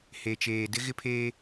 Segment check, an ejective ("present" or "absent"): absent